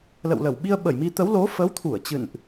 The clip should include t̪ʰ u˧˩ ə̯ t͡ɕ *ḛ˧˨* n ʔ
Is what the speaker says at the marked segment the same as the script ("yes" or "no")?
no